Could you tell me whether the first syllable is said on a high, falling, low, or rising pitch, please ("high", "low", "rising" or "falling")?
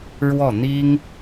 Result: falling